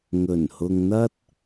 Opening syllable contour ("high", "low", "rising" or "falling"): low